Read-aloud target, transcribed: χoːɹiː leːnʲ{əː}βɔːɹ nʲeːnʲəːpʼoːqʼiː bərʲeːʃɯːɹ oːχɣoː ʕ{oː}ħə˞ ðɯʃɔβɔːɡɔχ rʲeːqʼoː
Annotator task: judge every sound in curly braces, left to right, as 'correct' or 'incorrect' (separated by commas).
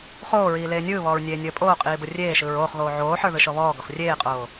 incorrect, correct